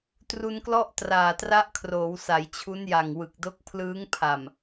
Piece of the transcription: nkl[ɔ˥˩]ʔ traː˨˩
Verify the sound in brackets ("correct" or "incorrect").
correct